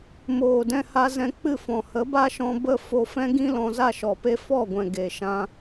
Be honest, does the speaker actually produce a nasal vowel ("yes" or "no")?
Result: yes